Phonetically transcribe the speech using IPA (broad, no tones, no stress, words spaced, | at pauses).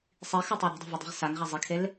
sˤixɯtˤɯ ɾɛ̤dˤe̤vɯdˤi̤ʁ saŋʁa zˤikʰel